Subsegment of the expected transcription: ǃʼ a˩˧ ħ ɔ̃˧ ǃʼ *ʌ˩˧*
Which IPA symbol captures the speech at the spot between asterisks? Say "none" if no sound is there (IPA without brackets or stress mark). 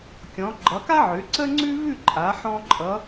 ʌ˩˧